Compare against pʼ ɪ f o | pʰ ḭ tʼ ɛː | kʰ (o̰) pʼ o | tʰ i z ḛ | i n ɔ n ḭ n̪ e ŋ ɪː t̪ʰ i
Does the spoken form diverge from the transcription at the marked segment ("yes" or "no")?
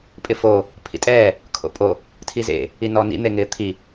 no